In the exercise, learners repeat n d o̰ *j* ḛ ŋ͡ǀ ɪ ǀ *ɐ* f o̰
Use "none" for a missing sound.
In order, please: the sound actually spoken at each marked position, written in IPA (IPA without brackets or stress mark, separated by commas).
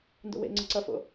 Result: w, ɐ